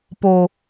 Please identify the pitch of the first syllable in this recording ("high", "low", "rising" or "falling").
low